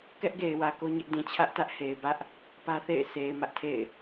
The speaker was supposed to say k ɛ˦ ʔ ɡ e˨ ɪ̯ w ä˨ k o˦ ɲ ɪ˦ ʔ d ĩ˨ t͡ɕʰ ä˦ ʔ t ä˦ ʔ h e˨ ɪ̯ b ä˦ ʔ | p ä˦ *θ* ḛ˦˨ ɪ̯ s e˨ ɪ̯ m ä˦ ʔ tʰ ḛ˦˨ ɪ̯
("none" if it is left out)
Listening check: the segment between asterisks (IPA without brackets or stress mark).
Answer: θ